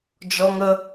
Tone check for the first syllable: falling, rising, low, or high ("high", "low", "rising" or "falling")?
high